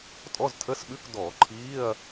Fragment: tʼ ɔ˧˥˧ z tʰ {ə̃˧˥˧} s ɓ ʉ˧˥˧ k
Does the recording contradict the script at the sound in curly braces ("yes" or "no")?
yes